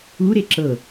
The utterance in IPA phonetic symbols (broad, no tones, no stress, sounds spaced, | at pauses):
u ɾ e ǁ ɤ